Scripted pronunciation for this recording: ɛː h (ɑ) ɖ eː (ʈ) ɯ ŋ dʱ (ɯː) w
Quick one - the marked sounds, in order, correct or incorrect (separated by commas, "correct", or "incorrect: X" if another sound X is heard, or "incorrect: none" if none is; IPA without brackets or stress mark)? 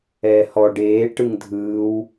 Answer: incorrect: ɔ, correct, correct